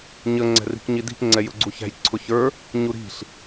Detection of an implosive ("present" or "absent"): absent